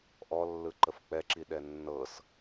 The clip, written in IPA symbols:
ʔ ɔ lː ɯ ǃ ə f k͡p ɛ ǁ i ɗ ɛ nː ɤ s

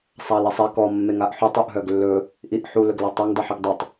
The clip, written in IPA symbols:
sˤ a l ɛ sˤ ɛ k ɔ mː e ŋ a ʔ ħ u tˤ u ʔ ɦ œ ɡ lː ɵ | ʔ i ʔ ħ u l ɵ ɡ l ɔ tˤ a ŋ dˤ i ħ i ɡ dˤ ɵ tˤ

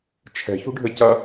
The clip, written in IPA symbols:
t͡ʃʰ ɛ̤ ç ṳ ɖʱ ɘ c ɐ

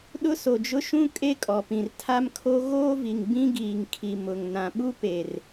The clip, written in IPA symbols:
ɗ ʊ˦ s o˨ d͡ʒ ʊ˦ ʃ ũ˦ kʼ e˦ kʼ ɔ˨ p ĩ˨ r tʰ a˦ m kʰ o˦ ɣ oː˦ v i˨ ŋ b ĩ˦ ɡ iː˨ ŋ kʰ i˨ m ʊ˨ ŋ n ã˨ ɓ u˦ p e˨ r

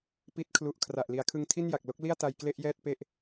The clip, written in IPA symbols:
p i˦˥ t̚ kʰ l u˨˩ ʔ kʰ r a˨˩ ʔ l i˩˦ a̯ kʰ ɯ˧ ŋ tʰ i˥˩ n j a˨˩ k̚ l o˦˥ k̚ l i˥˩ a̯ t a˧ j k l e˥˩ ʔ j ɛː˥˩ t̚ p e˥˩ ʔ

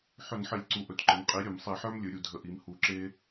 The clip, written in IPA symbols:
ħ ɵ˧˩˧ n ħ ə˧˩˧ lʲ ǀ u˧˩ ʔ ɵ˩˥ t ǃ ə˩˥ n qʼ i˩˥ ɾʲ ɵ˧˩˧ m sˤ i˧˩˧ ħ ə˞˥ m lʲ ɵ˩˧ ɾʲ u˧˩ dʱ ə˧˩˧ ʔ i˩˧ m h u˧˩ ǁ e˥

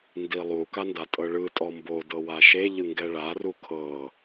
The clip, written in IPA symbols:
n d i lˠ u k a n d a tʼ ɤ ɭ ɯ tʼ ɔ m b o d ɤ w a ʃ e ʎ ɯ ŋ ɡ ɛ ɭ a r u kʰ ɤ

